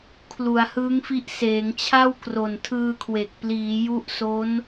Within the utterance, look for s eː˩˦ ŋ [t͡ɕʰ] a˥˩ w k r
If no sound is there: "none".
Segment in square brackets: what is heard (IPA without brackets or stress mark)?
t͡ɕʰ